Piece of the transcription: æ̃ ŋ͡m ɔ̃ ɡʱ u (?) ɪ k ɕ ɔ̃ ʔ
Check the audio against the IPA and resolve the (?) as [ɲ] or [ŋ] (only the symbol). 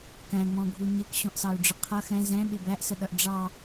ɲ